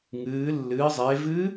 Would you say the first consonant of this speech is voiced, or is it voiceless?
voiced